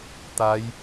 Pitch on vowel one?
rising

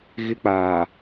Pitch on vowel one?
high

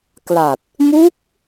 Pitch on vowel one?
low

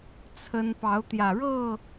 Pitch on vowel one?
high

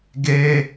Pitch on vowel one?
high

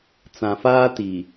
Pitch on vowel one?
low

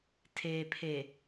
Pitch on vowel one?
low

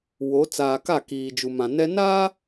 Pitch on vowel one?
rising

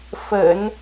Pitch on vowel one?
low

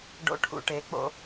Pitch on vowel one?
rising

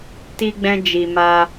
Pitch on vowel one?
high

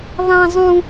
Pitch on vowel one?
high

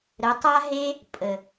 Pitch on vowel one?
rising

